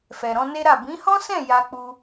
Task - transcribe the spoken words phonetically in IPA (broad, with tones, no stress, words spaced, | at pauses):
fɛ˨ɾɔ̃˧ne˦ɾa˦˨ bĩ˨˦hɔ̃˦sɛ̃˦˨ ja˧k͡pu˧